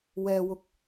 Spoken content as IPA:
w ɛː˧ w ʊ˧ k̚

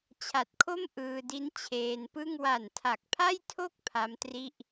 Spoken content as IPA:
t͡ɕʰ a˨˩ t̚ kʰ o˥˩ m ʔ ɯː˧ d i˦˥ n t͡ɕʰ eː˧ n p ɯ˥˩ ŋ w a˨˩ n tʰ a˨˩ k̚ pʰ a˥˩ j tʰ o˥˩ k̚ pʰ a˦˥ m t r i˥˩ ʔ

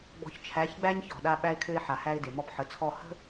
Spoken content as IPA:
ɡ͡b ɔ̤˨ ç t͡ʃʰ æ˨˦ ç ɡ͡b æ˦ ɲ ç ɔ̤˨ ɗ a˦ ɓ æ˦ ɪ̯ kʰ ø˦ ɪ̯ ħ a˨ h æ˦ ɪ̯ d e˨ m ɔ˦ p ħ ə˨˦ t͡sʰ ɔ˦˨ h ə̤˦

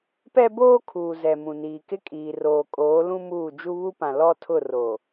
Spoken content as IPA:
p ɛ˦ b oː˦ kʰ uː˨ z ɛ˨ m ũ˨ n iː˨ k ɪ˦ kʼ iː˨ r oː˨ kʼ oː˨˦ l ũ˦ m uː˦˨ d͡ʒ u˦ β u˦ p ã˨ l ɔ˦ tʰ ʊ˦˨ r o˨

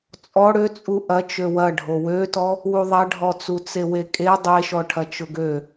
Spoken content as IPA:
t͡sʼ ɔ ɽ ø t͡sʼ u ʔ ɐ t͡ʃ ø w ɐ ɖʱ o w ø t ɔ | w u ðˤ ɐ ɖʱ ɔ t͡s u t͡s e w e kʼ e dˤ e ʃ ɔ ʈʰ ɐ t͡ʃ ʊ ɡ ø

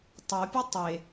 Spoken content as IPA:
tˤ o pʲ e tˤ e

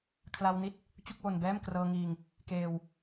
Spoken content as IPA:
kʰ l a˧ w n i˦˥ t̚ | t͡ɕ u˥˩ k̚ w o˧ n b ɛː˥˩ m k r ɤː˧ ŋ iː˧ ŋ | k eː˧ w

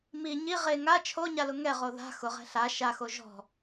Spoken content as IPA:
m i ɲ i ʁ e ŋ a t͡ʃʰ o ɲ a l ʊ ŋ ɛ ʁ o ð a̤ x ʊ ʁ ɛ̤ ɬ a ʃ a x o ʒ ɔ̤

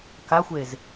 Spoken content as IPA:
k a xʷ e z

